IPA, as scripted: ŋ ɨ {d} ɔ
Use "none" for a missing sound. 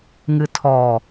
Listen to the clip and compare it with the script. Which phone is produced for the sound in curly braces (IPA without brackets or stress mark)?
tʰ